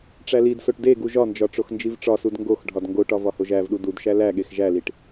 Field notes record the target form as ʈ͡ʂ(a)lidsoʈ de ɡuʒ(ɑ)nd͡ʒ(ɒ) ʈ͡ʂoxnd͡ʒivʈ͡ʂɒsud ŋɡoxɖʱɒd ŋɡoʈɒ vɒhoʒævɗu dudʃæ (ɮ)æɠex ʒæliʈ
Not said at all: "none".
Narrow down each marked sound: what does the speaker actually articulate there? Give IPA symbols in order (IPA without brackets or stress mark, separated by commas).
æ, ɒ, ɒ, l